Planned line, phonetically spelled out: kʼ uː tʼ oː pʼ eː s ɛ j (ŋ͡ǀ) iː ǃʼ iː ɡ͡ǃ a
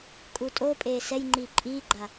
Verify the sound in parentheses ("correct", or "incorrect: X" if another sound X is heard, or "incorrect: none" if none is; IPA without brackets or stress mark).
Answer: incorrect: ŋ͡ǃ